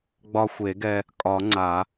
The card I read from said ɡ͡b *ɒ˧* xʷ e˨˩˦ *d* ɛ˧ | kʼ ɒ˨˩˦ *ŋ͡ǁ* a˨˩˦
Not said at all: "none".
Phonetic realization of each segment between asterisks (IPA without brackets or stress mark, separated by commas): ɒ˧, ɡ, ŋ͡ǀ